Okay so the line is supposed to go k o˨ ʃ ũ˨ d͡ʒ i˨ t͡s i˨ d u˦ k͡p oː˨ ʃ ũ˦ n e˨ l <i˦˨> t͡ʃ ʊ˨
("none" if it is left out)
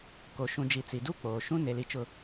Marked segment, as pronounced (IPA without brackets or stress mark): i˨